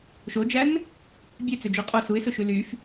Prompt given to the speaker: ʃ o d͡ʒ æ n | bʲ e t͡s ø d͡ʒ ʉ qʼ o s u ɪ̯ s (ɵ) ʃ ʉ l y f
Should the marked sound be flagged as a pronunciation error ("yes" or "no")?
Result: no